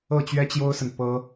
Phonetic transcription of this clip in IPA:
ɤ˥˩ t͡ɕ ɥ ɛ˥ t͡ɕ j o˥ ʊ̯ s ə˨ n p ɤ˥

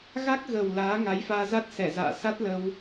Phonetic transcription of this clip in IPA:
ɣ a˦˥ k̚ ɣ ə˨˩ w l aː˨˦ ŋ a˨˦ j f aː˧ z a˦˥ t̚ s ɛ˧˩ z a̰ː˧˨ s a˦˥ t̚ l ə˧ w

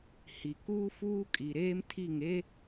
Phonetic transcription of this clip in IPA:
h i˨ k uː˦ f uː˦ kʼ i˨ ɾ eː˦ m tʰ i˦˨ ŋ e˦

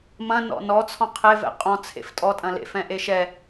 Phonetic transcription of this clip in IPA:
m ɐ̃ n ɔ̰ n ɔ t͡sʰ ɔ̃ qʰ e v ɛ̰ qʼ ɔ̃ t͡sʰ ḛ f tʼ ɔ tʼ ɐ̃ l ḛ f ɛ̃ ʔ e ʃ ɛ

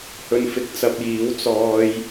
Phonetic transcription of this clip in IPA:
h ɵ˧ n f ɪ˧ k̚ t͡s ɐ˧ p̚ j iː˨˧ w t͡s ɔː˧ j

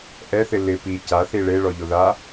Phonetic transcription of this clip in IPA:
ʔ ɛ θ ɪ l ɪ p i c a θ i ɭ e ɭ ɔ ʎ o ð a

